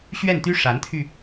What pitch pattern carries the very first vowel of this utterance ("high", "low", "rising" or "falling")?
falling